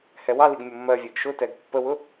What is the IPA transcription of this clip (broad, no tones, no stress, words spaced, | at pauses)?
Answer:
hɛwɑliɡ mʲʊmːɜvʲɛɡ ʃʊtɛɡ pːəwʊ